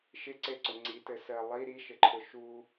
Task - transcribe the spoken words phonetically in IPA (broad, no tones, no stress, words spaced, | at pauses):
ʃɪǀeǀʊ ŋ͡ǀitɘ sɜlˠi ɾiʃɘǃʰʊ ʃu